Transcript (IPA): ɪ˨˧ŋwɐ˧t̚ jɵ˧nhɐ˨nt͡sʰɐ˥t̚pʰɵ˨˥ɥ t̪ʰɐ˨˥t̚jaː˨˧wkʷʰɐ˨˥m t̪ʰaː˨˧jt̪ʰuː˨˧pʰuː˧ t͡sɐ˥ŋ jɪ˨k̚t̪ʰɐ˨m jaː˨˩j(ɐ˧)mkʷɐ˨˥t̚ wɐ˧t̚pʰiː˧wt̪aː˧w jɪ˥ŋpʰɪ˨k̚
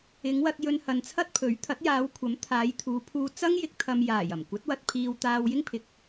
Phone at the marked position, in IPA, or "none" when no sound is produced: ɐ˨˩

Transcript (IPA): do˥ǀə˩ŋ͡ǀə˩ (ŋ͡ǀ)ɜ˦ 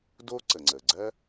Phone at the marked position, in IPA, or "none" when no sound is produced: ɡ͡ǀ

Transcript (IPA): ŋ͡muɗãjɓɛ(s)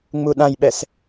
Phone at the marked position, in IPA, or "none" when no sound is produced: s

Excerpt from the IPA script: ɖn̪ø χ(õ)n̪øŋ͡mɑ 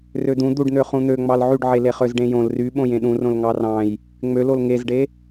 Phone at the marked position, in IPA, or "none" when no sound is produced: ũ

